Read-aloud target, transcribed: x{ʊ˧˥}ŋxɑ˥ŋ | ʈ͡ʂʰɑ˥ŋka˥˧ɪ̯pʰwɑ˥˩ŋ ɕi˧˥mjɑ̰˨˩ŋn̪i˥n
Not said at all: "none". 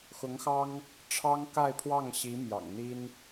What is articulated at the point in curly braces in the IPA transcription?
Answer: ʊ˧˥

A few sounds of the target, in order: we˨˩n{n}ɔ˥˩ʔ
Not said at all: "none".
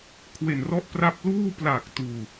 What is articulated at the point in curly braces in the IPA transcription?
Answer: r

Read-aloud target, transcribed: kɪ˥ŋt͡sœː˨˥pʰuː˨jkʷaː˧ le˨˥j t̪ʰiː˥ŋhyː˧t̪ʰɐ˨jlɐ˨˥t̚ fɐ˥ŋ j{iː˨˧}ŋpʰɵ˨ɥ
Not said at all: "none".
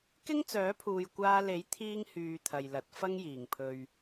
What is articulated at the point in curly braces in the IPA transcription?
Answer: iː˨˩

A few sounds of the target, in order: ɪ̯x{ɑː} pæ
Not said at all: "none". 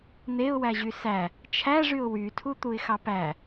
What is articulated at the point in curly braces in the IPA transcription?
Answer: ɑ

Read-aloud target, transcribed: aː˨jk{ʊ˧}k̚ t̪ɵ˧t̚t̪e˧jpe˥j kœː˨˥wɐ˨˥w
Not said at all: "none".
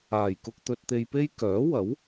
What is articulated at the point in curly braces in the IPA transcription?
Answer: ʊ˧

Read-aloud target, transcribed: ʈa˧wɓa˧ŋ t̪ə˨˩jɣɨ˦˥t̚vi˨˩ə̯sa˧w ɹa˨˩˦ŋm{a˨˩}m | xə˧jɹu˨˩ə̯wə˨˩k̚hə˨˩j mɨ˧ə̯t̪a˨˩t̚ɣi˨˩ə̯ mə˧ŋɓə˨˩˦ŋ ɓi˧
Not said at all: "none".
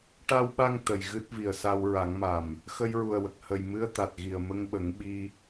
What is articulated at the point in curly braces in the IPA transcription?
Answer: a˨˩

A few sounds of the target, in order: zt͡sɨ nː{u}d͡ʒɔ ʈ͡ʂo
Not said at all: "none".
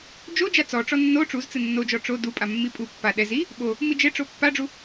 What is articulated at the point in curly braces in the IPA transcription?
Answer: o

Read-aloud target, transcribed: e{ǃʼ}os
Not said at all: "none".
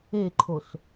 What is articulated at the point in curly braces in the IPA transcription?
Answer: ǃʰ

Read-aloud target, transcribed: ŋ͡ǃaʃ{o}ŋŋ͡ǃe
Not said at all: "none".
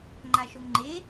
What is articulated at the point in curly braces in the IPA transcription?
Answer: o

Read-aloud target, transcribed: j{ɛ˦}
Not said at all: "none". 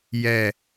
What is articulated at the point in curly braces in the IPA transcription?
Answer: ɛ˦˨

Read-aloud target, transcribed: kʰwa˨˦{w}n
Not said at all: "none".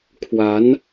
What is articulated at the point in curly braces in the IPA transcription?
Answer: none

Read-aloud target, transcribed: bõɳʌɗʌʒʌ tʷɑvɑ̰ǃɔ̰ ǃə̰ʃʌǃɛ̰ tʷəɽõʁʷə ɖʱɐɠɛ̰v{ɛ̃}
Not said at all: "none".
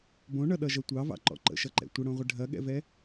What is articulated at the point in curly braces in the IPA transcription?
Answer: ɛ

